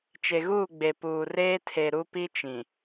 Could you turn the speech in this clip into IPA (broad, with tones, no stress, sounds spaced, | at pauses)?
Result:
t͡ʃ e˨ ɣ uː˦˨ ɡ͡b e˨ p uː˨ r eː˦ tʰ e˨ ɾ u˦ p i˦ t͡ʃ ĩ˨